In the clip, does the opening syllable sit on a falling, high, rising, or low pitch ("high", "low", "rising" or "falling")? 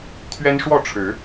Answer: high